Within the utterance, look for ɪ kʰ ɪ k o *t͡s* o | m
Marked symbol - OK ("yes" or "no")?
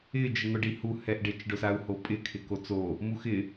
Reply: yes